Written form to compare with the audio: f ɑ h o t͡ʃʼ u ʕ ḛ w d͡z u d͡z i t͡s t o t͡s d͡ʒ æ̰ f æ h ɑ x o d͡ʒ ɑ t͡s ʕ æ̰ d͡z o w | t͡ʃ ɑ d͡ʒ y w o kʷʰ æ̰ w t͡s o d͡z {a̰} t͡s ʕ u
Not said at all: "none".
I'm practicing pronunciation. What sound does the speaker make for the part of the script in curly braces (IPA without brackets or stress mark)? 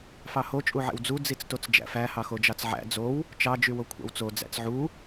æ̰